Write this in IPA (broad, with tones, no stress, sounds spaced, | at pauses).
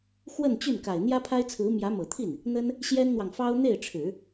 x w ə˥˧ n t͡ɕ y˥˩ n k a˨˩ ɪ̯ n̪ j ä˥ pʰ a˥ ɪ̯ t͡sʰ ɹ̩˧˥ m j ä˧˥ m ɤ˨˩ t̪ʰ i˥˩ n | n̪ ə˥ n | ɕ j ɛ˥ n n̪ w ɑ˨ ŋ f ɑ˥ ʊ̯ n̪ e˥˩ ɪ̯ ʈ͡ʂʰ ɻ̩˨˩˦